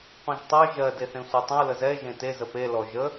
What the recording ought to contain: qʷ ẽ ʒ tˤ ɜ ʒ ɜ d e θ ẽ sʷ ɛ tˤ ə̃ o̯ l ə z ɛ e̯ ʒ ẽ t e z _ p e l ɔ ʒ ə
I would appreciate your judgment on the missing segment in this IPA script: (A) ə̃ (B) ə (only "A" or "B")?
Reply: B